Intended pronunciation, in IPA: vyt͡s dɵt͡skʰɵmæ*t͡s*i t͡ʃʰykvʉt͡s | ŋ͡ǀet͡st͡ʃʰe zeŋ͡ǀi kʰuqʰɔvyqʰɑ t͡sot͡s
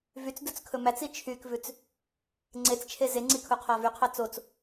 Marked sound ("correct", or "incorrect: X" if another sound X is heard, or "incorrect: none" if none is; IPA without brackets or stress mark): correct